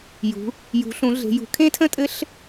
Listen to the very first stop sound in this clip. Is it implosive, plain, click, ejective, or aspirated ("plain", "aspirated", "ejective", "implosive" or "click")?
aspirated